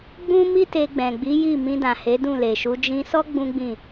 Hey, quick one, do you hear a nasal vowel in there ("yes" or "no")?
yes